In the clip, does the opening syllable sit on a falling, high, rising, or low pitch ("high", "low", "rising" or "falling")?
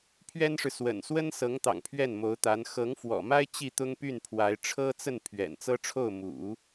high